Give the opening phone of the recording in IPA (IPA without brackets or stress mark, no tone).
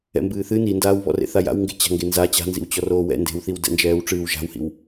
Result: ɛ̰